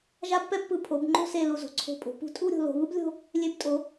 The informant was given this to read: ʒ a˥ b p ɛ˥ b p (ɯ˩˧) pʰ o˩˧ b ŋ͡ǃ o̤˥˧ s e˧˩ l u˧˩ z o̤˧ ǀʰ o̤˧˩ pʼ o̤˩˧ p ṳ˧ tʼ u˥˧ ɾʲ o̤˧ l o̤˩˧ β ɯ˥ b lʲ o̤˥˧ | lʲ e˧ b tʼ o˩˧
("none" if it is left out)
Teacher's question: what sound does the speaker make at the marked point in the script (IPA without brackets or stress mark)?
ɯ˧˩